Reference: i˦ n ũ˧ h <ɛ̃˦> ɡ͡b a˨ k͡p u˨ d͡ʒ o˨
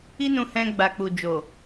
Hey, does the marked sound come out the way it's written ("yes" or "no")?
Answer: no